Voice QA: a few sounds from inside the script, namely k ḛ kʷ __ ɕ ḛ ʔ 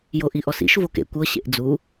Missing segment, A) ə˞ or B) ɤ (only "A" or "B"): B